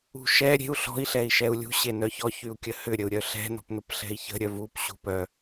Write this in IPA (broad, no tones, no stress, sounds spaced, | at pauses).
ṳ ʃ ɛ ɾʲ e̤ u̯ ɬ ɔ̤ i̯ ɬ ɛ i̯ ʃ ɛ u̯ lʲ ṳ ɕ e n œ ç ɔ ç y u̯ kʲ ə h ʏ ɾʲ ə u̯ ɾʲ œ ɬ ɛ̤ n ɔ̤ p n ʊ p ɬ ɛ̤ i̯ ç ə̤ ɾʲ œ v u p ɕ ṳ p œ